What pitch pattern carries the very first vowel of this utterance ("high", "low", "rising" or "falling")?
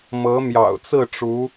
rising